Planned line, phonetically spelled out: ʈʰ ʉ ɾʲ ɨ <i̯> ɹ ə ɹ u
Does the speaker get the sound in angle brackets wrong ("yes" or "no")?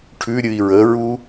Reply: no